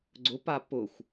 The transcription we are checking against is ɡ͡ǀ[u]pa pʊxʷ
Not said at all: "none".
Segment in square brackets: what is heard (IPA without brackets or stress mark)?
ʊ